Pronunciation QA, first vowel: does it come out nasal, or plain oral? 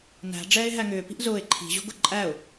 oral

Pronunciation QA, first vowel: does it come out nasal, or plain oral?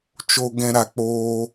oral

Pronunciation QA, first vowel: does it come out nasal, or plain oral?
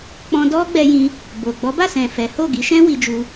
nasal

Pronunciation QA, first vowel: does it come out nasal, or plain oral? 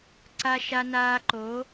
oral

